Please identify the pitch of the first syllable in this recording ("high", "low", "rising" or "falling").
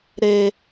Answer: high